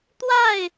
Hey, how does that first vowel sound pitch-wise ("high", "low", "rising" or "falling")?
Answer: falling